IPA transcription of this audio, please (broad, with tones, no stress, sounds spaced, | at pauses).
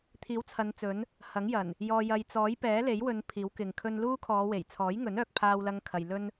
t̪ʰ iː˨˥ w t͡sʰ ɐ˨˧ n t͡s ɵ˨˥ n | h ɐ˨˥ ŋ j ɐ˨˩ n | j ɔː˨ j ɐ˨ j t͡s ɔː˨˥ j p ɛː˨˥ l e˨˥ j w ɵ˨˧ n pʰ iː˨˥ w k ɪ˨ ŋ kʰ ɵ˧ n l uː˥ kʰ ɔː˨˧ w e˨˩ j t͡sʰ ɔː˨˥ j ŋ ɵ˨˥ n œː˧ k̚ pʰ aː˥ w l ɐ˥ ŋ kʰ ɐ˧ j l ɵ˥ n